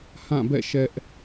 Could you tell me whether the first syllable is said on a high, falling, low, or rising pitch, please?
falling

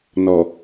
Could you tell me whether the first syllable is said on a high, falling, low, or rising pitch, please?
low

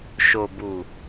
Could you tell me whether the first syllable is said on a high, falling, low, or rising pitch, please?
low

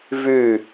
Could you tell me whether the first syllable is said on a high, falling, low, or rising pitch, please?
falling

